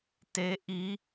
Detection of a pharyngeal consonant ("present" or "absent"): absent